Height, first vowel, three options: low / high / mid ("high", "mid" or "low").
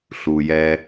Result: high